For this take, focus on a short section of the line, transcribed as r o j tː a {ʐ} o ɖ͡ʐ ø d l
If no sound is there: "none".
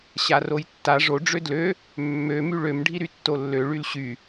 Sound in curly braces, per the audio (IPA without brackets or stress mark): ʐ